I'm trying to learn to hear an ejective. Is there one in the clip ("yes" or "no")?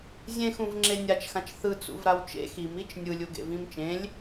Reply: no